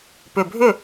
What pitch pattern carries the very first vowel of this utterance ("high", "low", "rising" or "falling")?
low